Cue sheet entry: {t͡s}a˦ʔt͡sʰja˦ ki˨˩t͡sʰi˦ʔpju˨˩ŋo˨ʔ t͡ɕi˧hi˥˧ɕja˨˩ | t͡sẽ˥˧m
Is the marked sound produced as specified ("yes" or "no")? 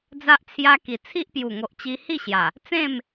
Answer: no